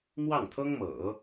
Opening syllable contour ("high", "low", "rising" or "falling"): falling